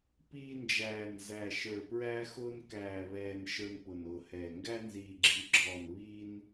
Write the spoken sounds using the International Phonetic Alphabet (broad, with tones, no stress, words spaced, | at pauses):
piː˧nd͡ʒæː˨˩nzæ˨˩ ʃə˞˨˩pɹæː˧xʊː˧n kæː˨˩βɛː˨˩n ʃə˞˧npʊ˨˩nʊː˨˩hɛː˨˩ ŋɡæ˧nziː˨˩ɡ͡ǁi˨˩ɡ͡ǁɔː˨˩n βi˧n